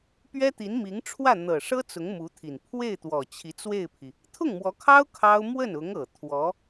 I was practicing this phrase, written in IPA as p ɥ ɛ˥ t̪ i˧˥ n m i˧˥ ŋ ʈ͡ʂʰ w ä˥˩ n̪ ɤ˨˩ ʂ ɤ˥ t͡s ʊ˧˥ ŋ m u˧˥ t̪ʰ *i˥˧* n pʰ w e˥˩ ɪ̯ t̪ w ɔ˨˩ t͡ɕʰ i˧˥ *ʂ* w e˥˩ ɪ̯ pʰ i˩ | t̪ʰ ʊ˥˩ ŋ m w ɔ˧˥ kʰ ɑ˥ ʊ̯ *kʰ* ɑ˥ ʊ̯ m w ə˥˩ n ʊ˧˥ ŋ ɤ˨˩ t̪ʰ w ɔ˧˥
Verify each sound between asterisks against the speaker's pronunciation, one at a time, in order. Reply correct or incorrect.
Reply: incorrect: i˨˩, incorrect: t͡s, correct

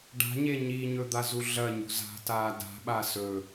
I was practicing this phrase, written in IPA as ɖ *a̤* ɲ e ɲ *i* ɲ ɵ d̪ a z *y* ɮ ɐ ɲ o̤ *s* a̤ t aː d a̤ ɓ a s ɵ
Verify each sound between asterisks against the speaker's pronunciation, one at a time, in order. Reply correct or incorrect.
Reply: correct, correct, incorrect: u, incorrect: z

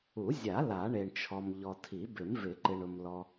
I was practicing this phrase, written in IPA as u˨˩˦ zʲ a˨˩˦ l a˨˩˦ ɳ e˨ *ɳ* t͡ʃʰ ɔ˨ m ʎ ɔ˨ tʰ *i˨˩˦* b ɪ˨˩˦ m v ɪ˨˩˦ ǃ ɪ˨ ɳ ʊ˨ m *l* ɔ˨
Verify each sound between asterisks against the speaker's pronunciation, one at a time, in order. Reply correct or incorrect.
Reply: correct, correct, correct

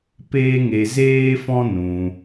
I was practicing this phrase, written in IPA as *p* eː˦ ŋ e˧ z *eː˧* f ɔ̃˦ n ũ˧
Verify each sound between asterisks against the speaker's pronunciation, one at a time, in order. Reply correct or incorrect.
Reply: correct, incorrect: eː˦

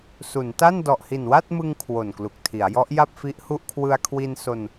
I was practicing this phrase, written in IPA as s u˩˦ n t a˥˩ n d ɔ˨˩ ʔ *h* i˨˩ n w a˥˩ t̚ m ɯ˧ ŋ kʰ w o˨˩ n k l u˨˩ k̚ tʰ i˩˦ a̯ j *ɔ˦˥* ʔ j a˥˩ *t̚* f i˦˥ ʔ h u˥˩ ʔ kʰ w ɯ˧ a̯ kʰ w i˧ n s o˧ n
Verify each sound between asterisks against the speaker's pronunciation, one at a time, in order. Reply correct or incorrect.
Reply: correct, correct, incorrect: p̚

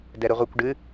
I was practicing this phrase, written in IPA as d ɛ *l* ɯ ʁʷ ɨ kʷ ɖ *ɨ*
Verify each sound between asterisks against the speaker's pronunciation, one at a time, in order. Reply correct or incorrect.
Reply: incorrect: ɾ, correct

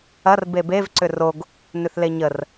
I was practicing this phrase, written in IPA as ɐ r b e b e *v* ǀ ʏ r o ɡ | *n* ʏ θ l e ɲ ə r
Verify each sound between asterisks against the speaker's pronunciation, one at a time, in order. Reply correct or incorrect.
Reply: correct, correct

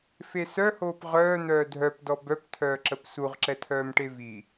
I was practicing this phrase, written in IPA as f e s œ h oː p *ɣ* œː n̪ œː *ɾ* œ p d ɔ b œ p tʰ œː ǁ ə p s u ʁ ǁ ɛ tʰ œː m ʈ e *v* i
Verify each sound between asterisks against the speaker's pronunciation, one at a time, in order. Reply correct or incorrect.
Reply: incorrect: ʁ, incorrect: dʱ, correct

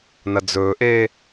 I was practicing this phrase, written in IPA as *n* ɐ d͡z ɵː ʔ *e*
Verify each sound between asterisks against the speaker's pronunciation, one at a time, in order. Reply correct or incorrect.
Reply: correct, incorrect: eː

